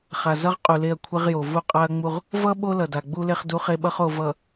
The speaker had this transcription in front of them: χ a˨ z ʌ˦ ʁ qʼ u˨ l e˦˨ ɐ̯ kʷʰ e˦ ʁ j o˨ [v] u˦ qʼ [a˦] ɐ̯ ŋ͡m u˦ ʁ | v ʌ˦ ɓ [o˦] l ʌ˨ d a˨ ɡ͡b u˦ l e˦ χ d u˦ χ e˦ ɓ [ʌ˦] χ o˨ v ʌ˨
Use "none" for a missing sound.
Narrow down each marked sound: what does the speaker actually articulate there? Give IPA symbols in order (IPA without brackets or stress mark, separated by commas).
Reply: v, a˦, o˦, ʌ˦